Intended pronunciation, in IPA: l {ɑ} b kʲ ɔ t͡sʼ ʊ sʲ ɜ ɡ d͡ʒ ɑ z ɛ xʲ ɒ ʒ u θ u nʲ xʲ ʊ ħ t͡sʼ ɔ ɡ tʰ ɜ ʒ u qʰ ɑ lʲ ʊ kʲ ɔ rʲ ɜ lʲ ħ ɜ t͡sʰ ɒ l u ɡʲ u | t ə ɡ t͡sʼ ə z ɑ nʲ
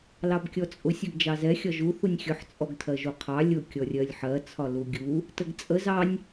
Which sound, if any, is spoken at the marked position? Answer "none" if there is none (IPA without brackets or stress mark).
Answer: ɑ